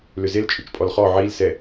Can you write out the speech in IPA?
l ʏ z e l t͡ʃʼ ʏ t͡ʃ pʼ ɔ l χ ɔ ʕ i l s ɛ

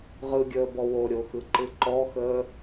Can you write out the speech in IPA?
ʁ ɯ ɡʲ əː b ɔ w o ɾʲ o x ɯ ǃ ɯ ǃ ɔ x əː

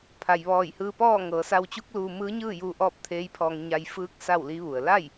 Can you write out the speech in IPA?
pʰ a˩ j ʋ ɔː˧˩ j h ɯː˧ p ɔː˥˨ ŋ ɤː˩˧ s a˧ w t͡ɕ u˧˥ k̚ l uː˧ m ɯː˧˥ ɲ ɯː˥˨ j uː˧ ʔ ɔː˥˨ p̚ t̪ʰ eː˧˥ j pʰ ɔː˧ ŋ ɲ a˧ j f ɯː˧˥ k̚ s a˥˨ w l i˧˥ ʋ u˩ ə̯ l a˥˨ j

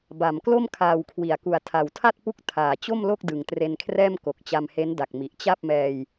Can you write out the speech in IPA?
b a˨˩ m k l o˥˩ m kʰ aː˨˩ w kʰ w i˩˦ a̯ k u˨˩ a̯ tʰ a˨˩ w tʰ a˥˩ t̚ p u˦˥ k̚ tʰ aː˨˩ t͡ɕ o˥˩ m l o˥˩ k̚ d ɯ˨˩ ŋ t r e˧ n kʰ r ɛː˥˩ m k o˨˩ k̚ t͡ɕ a˧ m h e˦˥ n d a˨˩ k̚ m i˨˩ ʔ t͡ɕ a˥˩ p̚ m ɛː˧ j

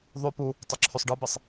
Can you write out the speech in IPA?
ðˤ y p u | tˤ ø ǁʰ y sˤ ɖ ɯ b e sˤ

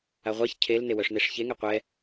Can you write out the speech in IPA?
a ʁʷ a ç cʰ e l n e w œ ʂ n e ʂ ç e ŋ ɛ qʷ ɛ

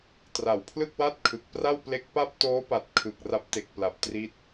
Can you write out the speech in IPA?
t r a˨˩ w pʰ l ɯ˥˩ k̚ w a˥˩ t̚ kʰ ɯ˨˩ k̚ p r a˥˩ w p l e˦˥ k̚ p a˥˩ p̚ t oː˦˥ p a˨˩ t̚ kʰ ɯ˨˩ k̚ r a˦˥ p̚ t e˨˩ k̚ p l a˨˩ p̚ t r i˦˥ t̚

